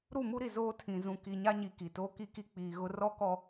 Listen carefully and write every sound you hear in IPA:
ɾ u˦˨ m u˦ ɾ i˨ z oː˦ tʰ ĩ˨ z ũ˨ k i˨ ɲ a˦ ɲ i˨ k i˨ t oː˦ k i˦ k i˦ k͡p iː˨ ɣ ʊ˦ r ɔ˦ k ɔ˦

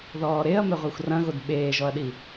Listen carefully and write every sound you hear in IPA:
ð ɔː ɾ e ɐ̯ m ɛ ʁʷ a xʷ r ɐ̃ ɣ o d ɓ eː ʒ ɔ ɐ̯ ɗ i

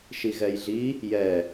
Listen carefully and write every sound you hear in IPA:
ʃ i ɣ ɛ j ɮ i | j ɛ

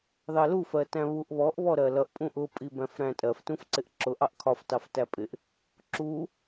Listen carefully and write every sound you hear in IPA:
ð ɑ l u f ɜ t æ̃ β u ʔ β ɔ ʔ β ɔ ɾ ɜ l ʌ ʔ pʼ ũ ʔ ʊ pʼ i b æ̃ f ɾ æ̃ tʼ ɜ f t ũ f ǀ ɪ ʔ ǁ ʊ ʔ ɑ ʔ kʰ ɒ f t ɑ f t æ pʼ ɪ ʔ | ǁ u

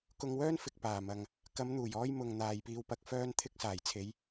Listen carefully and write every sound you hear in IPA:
k ʊ˧ ŋ w œː˥ n f ɪ˨ k̚ p aː˨˩ m ɐ˨ ŋ | k ɐ˨˧ m n̪ uː˨˩ j ɔː˧ j m ʊ˨ ŋ n̪ aː˨ j p iː˧ w p ɐ˧ k̚ f œː˥ n t̪ʰ ɪ˥ k̚ s aː˨˩ j t͡sʰ e˨˧ j

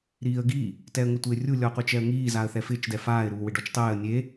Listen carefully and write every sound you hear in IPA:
ɾ iː ə̯ ɡ i | t ɛ ə̯ ŋ ʊ tʷ ɪː rʲ u lʲ ɔ ə̯ qʷ i t͡ʃ ɛ ə̯ ŋ iː z a ə̯ θ ɛ f ɪː t͡ʃ d ɛ f aː ɪ̯ ɾ uː w ɪ ɖ ɔ t͡ʃ tˤ ɛː ə̯ nʲ e

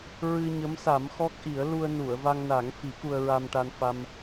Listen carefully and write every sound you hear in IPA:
ɹ ɨ˧ ɲ ə˧˥ m s a˨˩˦ m x ɔ˦˥ k̚ ʔ i˨˩˦ ə̯ l u˧ ə̯ n u˨˩˨ ə̯ v a˧ ŋ n a˨˩˦ ŋ f i˨˩˦ k u˧ ə̯ ɹ a˧ m ʈ a˧ n f a˧ m

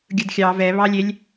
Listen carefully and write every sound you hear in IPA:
ɡʲ ɯ d xʲ ɑ v ɛ β ɑ lʲ e lʲ

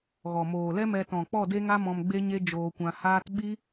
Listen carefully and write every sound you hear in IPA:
ɣ ɔ˨ m oː˨ l ɛ˦ m ɛ˧ t ɔ̃˨ k͡p ɔ˦˨ d e˦ ŋ a˦ m ɔ̃˧ m ɡ͡b e˦ ɲ e˦ d͡ʒ oː˧ kʷ ã˧ h aː˦ t ɓ i˦

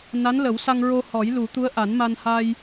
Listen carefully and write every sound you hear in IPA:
n a˧˥ n l ə˨˩˦ w s a˧ ŋ ɹ o˧ h ɔ˨˩˦ j l u˨˩˦ t̪ u˧˥ ə̯ ʔ a˨˩˦ n m a˧ n h a˧ j

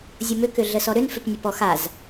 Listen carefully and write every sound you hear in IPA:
zʲ ʊ m ʏ k ʏ ɮ ə s ɔ ɾ ʏ n f ʏ p nʲ ə p ɔ x a z

